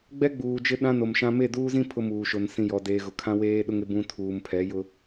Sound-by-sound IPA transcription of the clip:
ɡ͡bɛ˦ɡ͡buː˨d͡ʒɪ˦ ɗã˦no˨mʃã˦ me˦˨duː˦zĩ˦ pʰʊ˦muː˨ʃo˨n sĩ˨jɔ˨deː˨ɣʊ˨ kʰã˦weː˦ɗʊ˦ŋɪ˦ bũ˦ tʰuː˨mpʰɛ˨˦jʊ˦

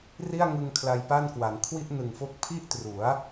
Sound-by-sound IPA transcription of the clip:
ri˥˩a̯ŋɯ˧ŋ kʰla˧jpa˥˩nkwa˩˦n kʰwi˥˩ʔnɯ˨˩ŋfo˦˥k̚ pʰi˥˩ʔtru˩˦a̯

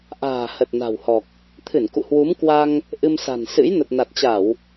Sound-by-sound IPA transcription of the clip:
ʔa̤ː˨˩hə˨˩t̚ na̤˨˩whɔ˨˩k̚ | t̪ʰɨ˧˩nkṵ˧˨hwu˨˦mkwa˧ŋ | ʔɨ˧msa̤˨˩nsɨ̰˧˥j nə˨˩t̚na˨˩t̚t͡ɕa˧˩˨w

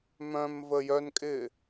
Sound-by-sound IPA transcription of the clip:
mœ̃mvə jœnkʼɪː

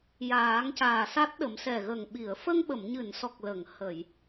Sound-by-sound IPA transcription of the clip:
jaː˨˩˦ŋcaː˨˩sa˦˥t̚ɗə˨˩˦m sɛ˨˩ɣə˨˩ŋɓi˨˩˨ə̯ fə˧ŋɓə˨˩˨mɲɨ˨˩˨nsɔ˨˩k̚ lə˨˩˨ŋ hə˨˩˨j

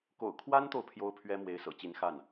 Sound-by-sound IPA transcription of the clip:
ko̰˨˩ʊ̯kʰwa˥nt̪o˨ʊ̯ pʰjo˥ʊ̯pʰɥɛ˥ mwe˧˥ɪ̯sɤ̰˨˩t͡ɕi˧˥n xa˥˩n

